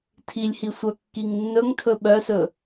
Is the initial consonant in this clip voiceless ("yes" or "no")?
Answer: yes